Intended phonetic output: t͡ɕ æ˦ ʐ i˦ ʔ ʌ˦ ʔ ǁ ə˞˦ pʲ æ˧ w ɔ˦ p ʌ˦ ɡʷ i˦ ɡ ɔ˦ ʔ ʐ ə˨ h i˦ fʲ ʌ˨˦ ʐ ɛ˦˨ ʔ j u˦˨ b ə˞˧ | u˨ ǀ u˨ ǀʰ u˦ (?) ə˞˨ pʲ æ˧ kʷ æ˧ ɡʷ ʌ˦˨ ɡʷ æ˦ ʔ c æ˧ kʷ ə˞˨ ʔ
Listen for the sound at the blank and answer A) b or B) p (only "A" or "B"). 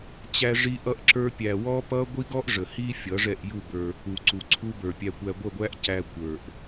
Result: A